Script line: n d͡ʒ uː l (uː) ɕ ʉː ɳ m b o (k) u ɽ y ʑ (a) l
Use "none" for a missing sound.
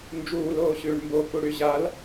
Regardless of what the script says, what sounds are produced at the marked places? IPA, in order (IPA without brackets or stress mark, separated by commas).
oː, k, a